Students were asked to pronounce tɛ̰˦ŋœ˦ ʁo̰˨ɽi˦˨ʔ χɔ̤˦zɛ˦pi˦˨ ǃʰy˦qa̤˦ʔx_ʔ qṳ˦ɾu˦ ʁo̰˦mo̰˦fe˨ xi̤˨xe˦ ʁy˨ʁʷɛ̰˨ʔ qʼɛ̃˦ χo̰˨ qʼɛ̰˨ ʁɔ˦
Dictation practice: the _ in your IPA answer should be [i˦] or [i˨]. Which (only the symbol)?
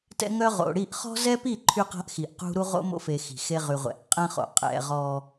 i˨